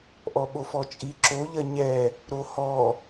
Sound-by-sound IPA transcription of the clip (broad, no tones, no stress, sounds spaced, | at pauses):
ʔ ɔ ɓ o f ɔ t͡ʃʼ i ǁ o ʎ ɐ ɲ ɛ | ɾ o h ɔ